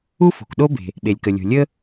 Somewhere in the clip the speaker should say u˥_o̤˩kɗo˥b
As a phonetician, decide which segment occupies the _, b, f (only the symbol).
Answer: f